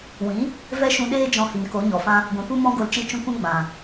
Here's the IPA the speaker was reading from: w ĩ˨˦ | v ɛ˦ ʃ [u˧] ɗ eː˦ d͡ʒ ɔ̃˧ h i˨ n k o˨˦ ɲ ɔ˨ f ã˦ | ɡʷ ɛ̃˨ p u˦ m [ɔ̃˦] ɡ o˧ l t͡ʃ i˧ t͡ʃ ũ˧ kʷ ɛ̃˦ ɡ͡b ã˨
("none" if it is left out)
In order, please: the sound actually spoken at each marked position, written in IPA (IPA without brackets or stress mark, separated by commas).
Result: ũ˧, ɔ̃˦